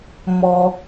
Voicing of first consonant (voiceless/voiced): voiced